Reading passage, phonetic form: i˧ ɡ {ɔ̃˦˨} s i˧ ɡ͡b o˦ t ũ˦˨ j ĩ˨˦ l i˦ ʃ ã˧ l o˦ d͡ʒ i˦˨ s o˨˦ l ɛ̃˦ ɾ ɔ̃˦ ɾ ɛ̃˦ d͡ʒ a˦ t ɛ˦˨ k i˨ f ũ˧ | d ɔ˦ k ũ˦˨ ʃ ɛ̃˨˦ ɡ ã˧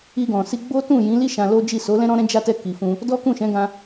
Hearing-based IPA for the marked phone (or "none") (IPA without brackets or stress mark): ɔ̃˨